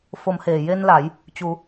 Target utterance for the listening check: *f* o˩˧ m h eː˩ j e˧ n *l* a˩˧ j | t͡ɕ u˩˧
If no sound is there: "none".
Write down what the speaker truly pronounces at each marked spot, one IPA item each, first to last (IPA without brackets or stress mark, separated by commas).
f, l